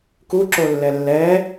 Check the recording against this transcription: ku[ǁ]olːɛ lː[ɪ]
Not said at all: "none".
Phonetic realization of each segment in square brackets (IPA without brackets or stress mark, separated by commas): ǁ, ɛ